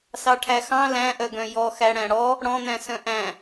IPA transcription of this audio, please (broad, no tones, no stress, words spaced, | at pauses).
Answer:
sɑʈʰæxɑ̃ læ̃ʔœɡœ̃ jɔxæ ɽæ̃ɽɔ | ɽɔ̃n̪æ̃ sœ̃ʔæ̃